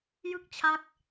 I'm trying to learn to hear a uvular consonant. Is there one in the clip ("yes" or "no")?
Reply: no